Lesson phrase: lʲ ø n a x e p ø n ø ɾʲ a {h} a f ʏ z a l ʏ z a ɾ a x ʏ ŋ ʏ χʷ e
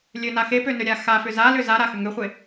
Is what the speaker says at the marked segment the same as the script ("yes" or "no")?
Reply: no